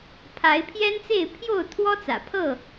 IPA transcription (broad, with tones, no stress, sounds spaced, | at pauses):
pʰ a˨˦ ɪ̯ pʰ j ɛ˦ n t͡s e˥˨ ɪ̯ pʰ j o˥˨ ʊ̯ t̪ʰ w ɔ˦ t͡s ä̰˨˩ pʰ ɤ˥˨